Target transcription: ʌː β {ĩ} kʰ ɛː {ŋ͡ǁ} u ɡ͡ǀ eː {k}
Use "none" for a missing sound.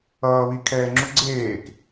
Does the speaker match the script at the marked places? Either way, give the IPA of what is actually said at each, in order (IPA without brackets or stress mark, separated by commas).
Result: i, ŋ͡ǁ, k